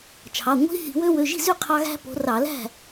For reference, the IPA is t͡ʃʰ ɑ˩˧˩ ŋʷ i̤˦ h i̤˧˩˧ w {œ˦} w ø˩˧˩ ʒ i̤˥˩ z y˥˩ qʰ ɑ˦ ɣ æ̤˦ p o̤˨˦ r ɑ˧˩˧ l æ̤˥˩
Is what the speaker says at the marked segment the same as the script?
no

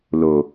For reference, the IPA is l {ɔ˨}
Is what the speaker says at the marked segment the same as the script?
no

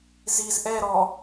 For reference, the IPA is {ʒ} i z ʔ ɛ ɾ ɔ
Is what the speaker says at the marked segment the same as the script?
no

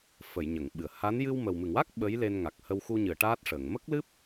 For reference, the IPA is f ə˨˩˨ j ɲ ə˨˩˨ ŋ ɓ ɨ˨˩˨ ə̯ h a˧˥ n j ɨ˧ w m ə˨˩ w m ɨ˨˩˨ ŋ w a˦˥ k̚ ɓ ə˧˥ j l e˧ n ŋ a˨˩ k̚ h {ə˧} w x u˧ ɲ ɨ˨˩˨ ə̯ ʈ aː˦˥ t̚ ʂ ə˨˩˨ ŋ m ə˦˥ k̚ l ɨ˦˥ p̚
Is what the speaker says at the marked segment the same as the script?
yes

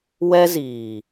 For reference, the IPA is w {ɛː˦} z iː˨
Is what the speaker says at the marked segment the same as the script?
no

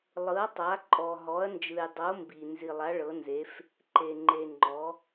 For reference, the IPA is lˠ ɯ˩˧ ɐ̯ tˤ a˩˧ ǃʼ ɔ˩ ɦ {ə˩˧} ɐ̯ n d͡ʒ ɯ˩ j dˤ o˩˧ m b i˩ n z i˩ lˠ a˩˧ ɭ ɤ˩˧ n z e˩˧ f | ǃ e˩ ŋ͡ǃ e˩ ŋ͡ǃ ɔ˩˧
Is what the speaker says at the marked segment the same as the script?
no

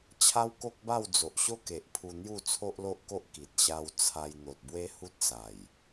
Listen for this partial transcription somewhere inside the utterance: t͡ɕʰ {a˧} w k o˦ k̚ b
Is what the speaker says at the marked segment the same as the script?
no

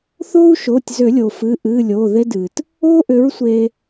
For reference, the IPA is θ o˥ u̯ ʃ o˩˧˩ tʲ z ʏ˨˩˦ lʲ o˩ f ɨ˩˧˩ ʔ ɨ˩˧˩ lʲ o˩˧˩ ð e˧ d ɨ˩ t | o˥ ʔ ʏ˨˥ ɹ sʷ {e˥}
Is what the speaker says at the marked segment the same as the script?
no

